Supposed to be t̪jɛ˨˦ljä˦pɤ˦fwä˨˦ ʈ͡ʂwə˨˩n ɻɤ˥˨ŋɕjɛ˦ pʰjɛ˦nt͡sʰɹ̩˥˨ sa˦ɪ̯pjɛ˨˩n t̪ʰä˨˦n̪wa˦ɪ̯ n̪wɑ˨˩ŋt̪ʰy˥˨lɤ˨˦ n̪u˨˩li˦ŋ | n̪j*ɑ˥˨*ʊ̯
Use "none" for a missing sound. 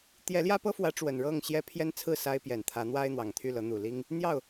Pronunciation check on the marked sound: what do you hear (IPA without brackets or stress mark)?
ɑ˥˨